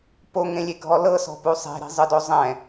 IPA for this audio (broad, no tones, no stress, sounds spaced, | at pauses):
p o ŋ ẽ lʲ e ɡʱ ɔ l ɤ s ɔ̤ p u sˤ e̤ ɾ i̤ zˤ ɯ d o zˤ ɛ̃